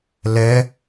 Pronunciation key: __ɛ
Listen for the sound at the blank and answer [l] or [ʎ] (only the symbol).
l